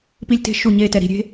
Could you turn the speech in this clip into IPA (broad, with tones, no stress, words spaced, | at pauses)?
pi˦lʲte̤˦ʃu˦˨ɲe˦ tɛ˨ɾi̤˨ɾʲe̤˦